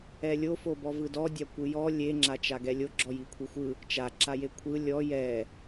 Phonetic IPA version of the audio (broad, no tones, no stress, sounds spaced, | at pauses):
ɛ lʲ o f o b ɔ v ɯ d ɔ dʲ a kʷ ɯ j ɔ lʲ e ŋ͡ǁ a t͡ʃ a ɡ ɛ lʲ o ɡ͡ǁ ɔ j i kʷʰ i xʷ ɯ | t͡ʃ a ǁ a j e kʷʰ ɯ lʲ ɔ j ɛ